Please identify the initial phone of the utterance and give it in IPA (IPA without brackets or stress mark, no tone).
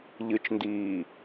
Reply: ʎ